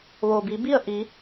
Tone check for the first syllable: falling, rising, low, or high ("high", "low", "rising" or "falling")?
low